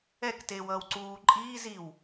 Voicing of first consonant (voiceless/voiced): voiceless